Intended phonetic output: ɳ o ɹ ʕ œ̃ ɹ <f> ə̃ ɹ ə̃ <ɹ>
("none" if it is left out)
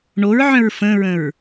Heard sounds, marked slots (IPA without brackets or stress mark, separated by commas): f, ɹ